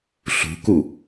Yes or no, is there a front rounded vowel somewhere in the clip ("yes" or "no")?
no